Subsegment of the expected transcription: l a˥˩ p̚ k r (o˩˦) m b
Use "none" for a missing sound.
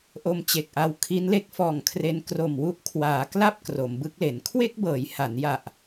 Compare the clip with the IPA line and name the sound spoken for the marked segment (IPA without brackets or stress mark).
o˩˦